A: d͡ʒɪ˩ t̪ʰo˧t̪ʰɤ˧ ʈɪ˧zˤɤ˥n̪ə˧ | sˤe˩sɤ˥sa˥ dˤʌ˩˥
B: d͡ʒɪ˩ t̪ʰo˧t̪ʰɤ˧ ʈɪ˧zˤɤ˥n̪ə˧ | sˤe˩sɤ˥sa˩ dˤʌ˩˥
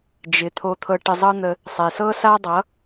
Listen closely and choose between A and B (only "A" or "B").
A